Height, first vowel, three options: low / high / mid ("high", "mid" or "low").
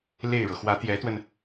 mid